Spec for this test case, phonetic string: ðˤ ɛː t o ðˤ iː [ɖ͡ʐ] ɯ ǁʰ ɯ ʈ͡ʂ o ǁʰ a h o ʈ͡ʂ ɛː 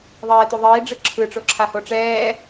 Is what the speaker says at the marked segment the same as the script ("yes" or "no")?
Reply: yes